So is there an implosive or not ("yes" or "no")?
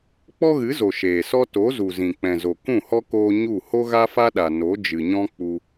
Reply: yes